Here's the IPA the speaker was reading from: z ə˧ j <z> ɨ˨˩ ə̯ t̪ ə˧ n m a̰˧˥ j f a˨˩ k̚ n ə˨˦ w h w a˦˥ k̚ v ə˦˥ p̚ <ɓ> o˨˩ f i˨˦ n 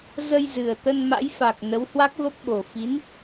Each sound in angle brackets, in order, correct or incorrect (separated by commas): correct, correct